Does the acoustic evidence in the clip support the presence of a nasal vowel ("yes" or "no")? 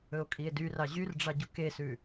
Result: no